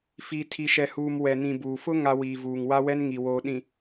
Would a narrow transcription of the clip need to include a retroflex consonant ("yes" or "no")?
no